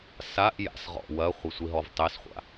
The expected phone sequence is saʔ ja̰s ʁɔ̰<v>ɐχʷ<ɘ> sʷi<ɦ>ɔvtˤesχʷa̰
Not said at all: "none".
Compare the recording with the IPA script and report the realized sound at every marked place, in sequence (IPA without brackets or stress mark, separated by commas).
w, ɘ, ɦ